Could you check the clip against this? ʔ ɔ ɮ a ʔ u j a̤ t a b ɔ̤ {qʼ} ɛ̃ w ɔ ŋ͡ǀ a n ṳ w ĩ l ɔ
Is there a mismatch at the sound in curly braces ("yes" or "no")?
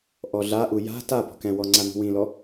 yes